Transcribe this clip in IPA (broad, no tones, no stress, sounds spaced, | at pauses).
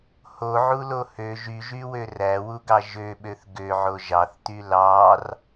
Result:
h o ʕ u l o h ø ʒ y ʒ y w ø r æ w u ɡ ɑ ʒ ø ɓ ø θ ɡ ø ʕ o ʒ ɑ θ t y l ɑ r